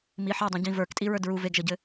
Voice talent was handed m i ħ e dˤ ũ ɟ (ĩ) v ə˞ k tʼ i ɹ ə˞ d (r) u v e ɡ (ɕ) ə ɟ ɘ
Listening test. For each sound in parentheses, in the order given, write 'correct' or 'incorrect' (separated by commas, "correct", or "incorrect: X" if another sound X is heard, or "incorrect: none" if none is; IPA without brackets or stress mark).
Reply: correct, incorrect: ɹ, incorrect: ʒ